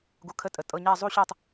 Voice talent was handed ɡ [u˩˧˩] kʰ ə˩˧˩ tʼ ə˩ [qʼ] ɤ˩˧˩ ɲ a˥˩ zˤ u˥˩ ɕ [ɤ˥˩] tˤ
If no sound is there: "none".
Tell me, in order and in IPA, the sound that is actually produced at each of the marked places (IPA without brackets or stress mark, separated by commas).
u˩, tʼ, ɤ˥˩